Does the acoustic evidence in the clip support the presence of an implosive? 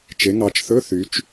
no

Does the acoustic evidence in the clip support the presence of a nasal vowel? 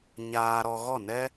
no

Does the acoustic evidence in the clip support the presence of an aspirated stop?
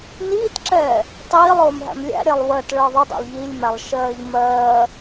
no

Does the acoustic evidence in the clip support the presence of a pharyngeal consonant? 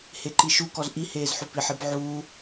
yes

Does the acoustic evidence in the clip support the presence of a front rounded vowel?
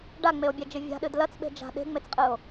no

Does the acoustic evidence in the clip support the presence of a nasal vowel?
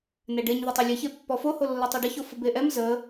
no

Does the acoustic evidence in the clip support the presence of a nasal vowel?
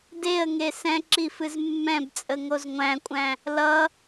yes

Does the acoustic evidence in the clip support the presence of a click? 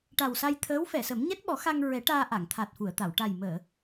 no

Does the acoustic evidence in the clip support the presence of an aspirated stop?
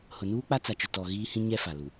no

